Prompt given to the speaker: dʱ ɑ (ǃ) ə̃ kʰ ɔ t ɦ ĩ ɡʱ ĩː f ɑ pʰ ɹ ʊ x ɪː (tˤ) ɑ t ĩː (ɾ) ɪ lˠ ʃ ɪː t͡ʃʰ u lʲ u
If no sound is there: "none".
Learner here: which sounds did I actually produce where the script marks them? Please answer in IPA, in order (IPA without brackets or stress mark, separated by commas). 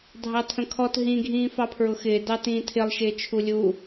tʰ, d, tʰ